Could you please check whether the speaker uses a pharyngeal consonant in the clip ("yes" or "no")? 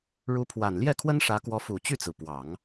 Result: no